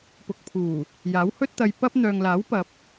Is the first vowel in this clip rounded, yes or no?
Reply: yes